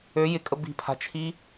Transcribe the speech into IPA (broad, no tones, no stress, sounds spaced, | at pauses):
ø j ɪ kʼ ə b i̤ pʰ a̤ t͡ʃʰ i